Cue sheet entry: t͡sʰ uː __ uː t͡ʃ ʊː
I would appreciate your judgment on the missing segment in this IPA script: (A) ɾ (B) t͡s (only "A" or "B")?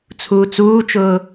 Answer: B